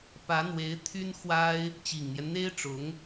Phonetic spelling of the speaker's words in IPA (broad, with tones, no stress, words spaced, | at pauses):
pä˧˥n̪we˧˥ɪ̯ t̪ʰy˥nxwa˥ɪ̯ | t͡ɕi˨˩ŋn̪jɛ˦nn̪e˥ɪ̯ʈ͡ʂʊ˧˥ŋ